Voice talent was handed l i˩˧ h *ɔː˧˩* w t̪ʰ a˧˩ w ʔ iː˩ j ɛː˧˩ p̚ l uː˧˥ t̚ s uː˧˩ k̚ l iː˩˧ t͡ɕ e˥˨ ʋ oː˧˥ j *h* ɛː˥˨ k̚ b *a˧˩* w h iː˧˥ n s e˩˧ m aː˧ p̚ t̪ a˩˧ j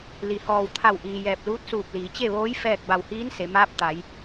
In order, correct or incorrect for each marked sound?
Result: correct, incorrect, correct

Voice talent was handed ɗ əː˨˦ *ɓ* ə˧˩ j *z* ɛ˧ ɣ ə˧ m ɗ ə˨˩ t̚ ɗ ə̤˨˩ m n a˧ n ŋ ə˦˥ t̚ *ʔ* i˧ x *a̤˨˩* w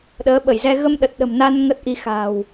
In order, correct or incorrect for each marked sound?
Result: correct, correct, correct, correct

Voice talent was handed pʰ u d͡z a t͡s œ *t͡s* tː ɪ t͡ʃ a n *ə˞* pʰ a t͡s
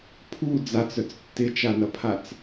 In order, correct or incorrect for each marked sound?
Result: correct, incorrect

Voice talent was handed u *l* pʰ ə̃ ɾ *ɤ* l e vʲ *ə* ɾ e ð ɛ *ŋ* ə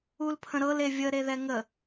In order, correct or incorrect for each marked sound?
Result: correct, correct, correct, correct

